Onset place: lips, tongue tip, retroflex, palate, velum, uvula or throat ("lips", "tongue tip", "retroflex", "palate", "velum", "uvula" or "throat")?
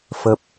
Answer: lips